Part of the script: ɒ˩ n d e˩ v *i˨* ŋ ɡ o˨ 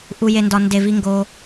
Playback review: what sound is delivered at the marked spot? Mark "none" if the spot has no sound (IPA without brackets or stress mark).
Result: i˨